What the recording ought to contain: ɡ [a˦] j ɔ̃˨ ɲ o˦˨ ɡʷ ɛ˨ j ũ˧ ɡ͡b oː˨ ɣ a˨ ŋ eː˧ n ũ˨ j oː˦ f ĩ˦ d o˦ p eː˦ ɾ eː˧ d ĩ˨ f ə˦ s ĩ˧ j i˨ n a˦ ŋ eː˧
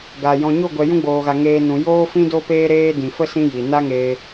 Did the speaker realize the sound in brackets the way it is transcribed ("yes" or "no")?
no